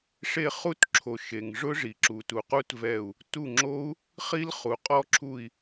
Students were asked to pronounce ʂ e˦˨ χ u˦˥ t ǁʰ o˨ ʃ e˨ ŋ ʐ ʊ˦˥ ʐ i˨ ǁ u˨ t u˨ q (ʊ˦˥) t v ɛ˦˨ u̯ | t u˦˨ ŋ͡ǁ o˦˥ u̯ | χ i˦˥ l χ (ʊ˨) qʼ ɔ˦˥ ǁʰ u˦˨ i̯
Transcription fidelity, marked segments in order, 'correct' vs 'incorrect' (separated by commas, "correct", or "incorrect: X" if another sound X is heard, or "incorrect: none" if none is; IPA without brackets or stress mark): incorrect: u˦˥, incorrect: u˨